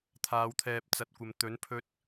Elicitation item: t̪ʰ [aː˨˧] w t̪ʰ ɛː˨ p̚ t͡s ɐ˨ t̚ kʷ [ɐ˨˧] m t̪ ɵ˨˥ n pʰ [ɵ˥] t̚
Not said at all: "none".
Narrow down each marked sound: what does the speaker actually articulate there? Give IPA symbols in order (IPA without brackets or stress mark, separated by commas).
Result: aː˨˧, ɐ˨, ɵ˥